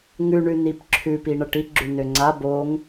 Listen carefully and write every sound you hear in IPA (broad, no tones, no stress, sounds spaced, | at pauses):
ŋ ʉ ɳ ʉ n i p ǁʰ ʉ p i ɳ ʌ ʈ i ɡ͡ǁ ʉ n ø ŋ͡ǀ a b o ŋ